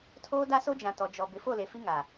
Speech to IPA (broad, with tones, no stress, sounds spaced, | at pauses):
tʰ oː˦ d a˦ s o˦ d͡ʒ ã˨ t ɔ˨ d͡ʒ ɔ˨ b ɪ˨˦ f o˦˨ l e˨ f i˦ ŋ a˨